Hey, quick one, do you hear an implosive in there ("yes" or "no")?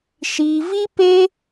no